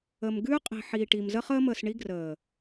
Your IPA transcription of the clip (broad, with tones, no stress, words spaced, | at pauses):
ə˨m ɡʉː˦qʼi̤˨ ħiː˨ʈi˨m zə˦χəː˦məː˨sɳi˦ ɡrəː˨